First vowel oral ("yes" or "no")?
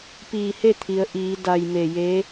yes